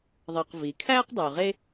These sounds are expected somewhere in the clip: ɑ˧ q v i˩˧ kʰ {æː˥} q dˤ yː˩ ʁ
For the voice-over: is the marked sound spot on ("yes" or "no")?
yes